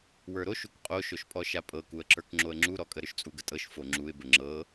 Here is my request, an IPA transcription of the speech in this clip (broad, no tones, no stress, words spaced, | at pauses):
wə˞ɾoʃuk qʼoʃoʃpʼɔ ʃapʼɤkuə̯ǁə˞k ŋ͡ǁoə̯ŋ͡ǁuɾɔkʼə ɾʏʃt͡sʼuɡətʼɤʃ foŋ͡ǁuɪ̯ bəŋ͡ǁɤ